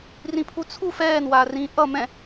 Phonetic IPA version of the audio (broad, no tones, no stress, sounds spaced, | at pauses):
r ĩ pʰ u t͡sʰ u f ɛː n w aː r ĩː ʔ ʌ m ɛ̃